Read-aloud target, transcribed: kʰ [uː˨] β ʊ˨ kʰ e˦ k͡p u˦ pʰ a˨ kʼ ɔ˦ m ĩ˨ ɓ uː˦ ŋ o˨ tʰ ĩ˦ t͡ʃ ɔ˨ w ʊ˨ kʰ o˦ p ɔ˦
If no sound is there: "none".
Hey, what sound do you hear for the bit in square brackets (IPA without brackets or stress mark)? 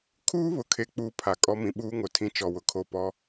uː˦